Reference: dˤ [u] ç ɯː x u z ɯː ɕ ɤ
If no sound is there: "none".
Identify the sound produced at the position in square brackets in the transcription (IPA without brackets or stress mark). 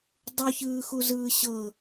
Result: u